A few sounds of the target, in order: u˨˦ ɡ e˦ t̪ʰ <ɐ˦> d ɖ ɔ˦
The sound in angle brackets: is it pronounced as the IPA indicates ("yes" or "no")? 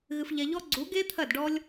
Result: no